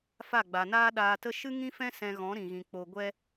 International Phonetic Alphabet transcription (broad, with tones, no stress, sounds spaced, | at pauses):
f a˦˨ ɡ͡b a˨ n aː˦ ɗ aː˧ t ə˦ ʃ ɨ˦ ŋ ĩ˦ f ɛ̃˦ s ɛ̃˧ ɣ ɔ̃˨˦ ɾ ĩ˨ ɣ ĩ˨ k͡p o˨ ɡʷ ɛ˧